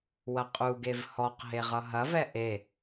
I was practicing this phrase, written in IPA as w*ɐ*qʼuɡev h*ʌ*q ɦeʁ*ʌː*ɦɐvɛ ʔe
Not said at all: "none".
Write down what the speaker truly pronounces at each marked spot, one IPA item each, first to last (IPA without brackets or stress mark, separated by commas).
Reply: ɐ, ɔ, ʌ